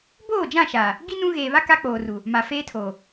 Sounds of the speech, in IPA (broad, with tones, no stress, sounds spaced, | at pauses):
b oː˦˨ d͡ʒ ã˦˨ ʃ aː˨ | ɡ i˦ n ũ˦ ɣ eː˨ β a˦ k a˦ k͡p oː˨ r u˨ | m a˨ f eː˦ tʰ oː˨